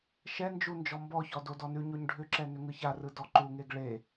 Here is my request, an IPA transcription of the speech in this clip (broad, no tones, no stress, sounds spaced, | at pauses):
ʃ ɛ n d͡ʒ u n d͡ʒ ɔ m b ɔ ç ɔ d o d ɔ n ʉ ɲ o ɲ ɖʱ ʏ ǁ ɛ n ʏ ŋ ɯ ç a r ɯ d ɔ ǃ u ŋ e ɡ ɭ e